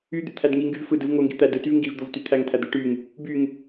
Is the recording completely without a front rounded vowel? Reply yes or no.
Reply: no